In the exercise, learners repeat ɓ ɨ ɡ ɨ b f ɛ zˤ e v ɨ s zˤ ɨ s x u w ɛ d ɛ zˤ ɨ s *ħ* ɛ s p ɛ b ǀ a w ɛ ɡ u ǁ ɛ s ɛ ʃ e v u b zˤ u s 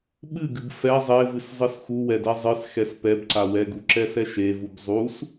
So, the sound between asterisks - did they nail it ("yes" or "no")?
no